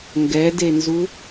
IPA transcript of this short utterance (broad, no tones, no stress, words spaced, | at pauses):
ŋɡɛdenzu